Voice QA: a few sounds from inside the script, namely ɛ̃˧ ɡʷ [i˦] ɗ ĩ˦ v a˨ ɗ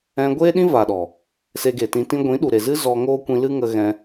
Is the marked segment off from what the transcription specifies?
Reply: yes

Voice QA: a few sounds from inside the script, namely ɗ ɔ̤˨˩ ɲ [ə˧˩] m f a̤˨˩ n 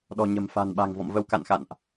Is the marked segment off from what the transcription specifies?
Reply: yes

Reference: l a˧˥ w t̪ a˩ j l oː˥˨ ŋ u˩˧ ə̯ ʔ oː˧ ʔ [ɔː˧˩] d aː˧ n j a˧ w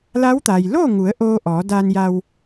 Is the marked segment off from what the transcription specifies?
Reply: yes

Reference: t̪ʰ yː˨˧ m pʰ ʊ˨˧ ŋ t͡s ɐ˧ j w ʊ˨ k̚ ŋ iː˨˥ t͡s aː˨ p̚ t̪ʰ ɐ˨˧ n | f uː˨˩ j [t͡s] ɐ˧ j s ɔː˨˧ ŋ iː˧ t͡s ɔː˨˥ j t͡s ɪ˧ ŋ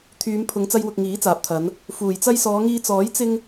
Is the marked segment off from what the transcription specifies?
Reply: no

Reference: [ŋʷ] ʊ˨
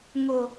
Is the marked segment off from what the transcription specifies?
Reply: yes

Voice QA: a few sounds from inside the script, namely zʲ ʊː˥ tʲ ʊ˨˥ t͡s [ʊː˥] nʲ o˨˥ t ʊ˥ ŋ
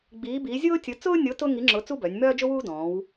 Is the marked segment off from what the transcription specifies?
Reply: no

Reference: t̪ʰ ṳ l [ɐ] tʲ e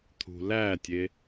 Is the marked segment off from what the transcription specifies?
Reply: yes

